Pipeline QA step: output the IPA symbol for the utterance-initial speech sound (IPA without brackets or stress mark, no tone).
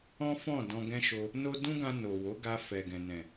ɔ̃